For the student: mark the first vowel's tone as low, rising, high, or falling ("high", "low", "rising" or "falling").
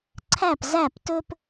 falling